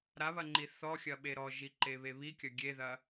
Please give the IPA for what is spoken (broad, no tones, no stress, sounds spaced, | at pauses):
ɾ a β ɐ ŋ͡ǃ i θ ɔ xʲ ɐ ɓ e ɾ ɔ ʒ i ǃ e β e β i kʲ ɐ ɡʲ e ð ɐ